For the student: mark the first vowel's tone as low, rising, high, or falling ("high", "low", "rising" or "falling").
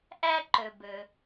high